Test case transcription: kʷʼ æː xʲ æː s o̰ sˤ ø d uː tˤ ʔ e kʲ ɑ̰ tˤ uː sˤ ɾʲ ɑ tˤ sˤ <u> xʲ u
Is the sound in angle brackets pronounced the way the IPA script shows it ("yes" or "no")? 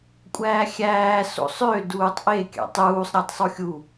yes